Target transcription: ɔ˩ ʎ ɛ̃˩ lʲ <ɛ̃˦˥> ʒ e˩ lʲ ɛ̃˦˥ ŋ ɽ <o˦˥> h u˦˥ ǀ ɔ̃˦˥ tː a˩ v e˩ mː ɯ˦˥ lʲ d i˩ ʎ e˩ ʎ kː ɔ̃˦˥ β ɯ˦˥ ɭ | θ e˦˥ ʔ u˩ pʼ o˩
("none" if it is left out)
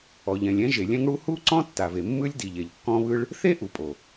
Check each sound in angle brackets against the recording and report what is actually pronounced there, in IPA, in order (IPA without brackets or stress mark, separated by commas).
ɛ̃˦˥, u˦˥